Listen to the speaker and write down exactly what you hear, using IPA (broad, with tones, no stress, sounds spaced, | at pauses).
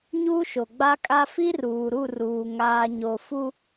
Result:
ɲ uː˦ ʃ o˨ ɡ͡b a˦ kʼ a˦ f i˦ r uː˨ ɾ u˦˨ r uː˨ ŋ aː˨ ɲ o˨ f u˦